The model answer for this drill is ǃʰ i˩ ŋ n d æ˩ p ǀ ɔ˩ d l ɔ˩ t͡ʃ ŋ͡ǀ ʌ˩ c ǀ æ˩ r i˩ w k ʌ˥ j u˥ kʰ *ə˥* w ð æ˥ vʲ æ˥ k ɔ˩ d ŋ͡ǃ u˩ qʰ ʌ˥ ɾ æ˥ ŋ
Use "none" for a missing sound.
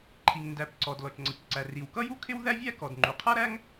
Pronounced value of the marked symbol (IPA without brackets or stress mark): ɪ˥